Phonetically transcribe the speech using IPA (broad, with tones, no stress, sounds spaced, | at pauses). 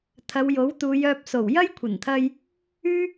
t̪ʰ ɐ˨˧ w j o˨˥ w t̪ uː˨˧ j œː˧ p̚ s o˨˩ w j ɐ˥ j kʷʰ ɐ˨˩ n t̪ʰ ɐ˧ j | yː˥